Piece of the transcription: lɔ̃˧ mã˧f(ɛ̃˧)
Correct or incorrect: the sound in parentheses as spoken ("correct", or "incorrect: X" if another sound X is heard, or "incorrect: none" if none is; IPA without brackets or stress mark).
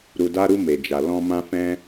correct